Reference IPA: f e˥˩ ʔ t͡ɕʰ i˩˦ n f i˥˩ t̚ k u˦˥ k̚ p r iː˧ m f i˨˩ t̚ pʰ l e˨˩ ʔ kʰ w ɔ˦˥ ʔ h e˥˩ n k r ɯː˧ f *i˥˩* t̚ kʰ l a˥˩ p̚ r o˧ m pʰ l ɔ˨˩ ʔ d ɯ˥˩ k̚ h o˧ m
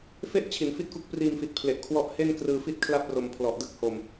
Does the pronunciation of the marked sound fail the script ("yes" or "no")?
no